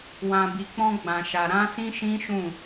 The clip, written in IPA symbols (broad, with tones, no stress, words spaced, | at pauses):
wã˨bi˨k͡pɔ̃˧ɡ͡bã˨ ʃa˨ɾã˧ sĩ˦ʃĩ˦ʃũ˦˨